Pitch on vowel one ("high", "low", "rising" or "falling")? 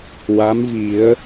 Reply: rising